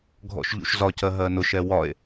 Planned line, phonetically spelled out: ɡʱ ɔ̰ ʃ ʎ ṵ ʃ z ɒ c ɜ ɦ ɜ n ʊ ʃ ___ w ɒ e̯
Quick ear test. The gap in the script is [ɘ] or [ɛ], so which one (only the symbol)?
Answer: ɛ